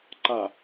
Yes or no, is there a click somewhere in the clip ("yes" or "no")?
yes